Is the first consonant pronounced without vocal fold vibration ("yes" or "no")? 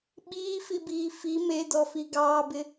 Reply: no